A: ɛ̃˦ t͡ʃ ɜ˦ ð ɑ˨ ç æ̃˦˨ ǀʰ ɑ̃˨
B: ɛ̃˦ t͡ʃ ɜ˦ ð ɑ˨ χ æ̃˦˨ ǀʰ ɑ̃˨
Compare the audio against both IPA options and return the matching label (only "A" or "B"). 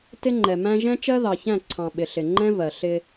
A